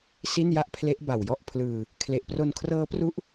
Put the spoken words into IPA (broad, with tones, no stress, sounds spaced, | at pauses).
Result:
s i˥˩ n j a˥˩ ʔ pʰ l e˦˥ ʔ b a˨˩ w j ɔ˥˩ ʔ pʰ l ɯː˧ | kʰ l e˨˩ ʔ p r o˧ n kʰ r ɤː˦˥ p r u˦˥ ʔ